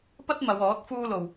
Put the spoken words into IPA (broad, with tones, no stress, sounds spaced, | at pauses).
p ɐ˥ t̚ m ɐ˨˧ w ɔː˨˥ t̚ f uː˥ l o˧ w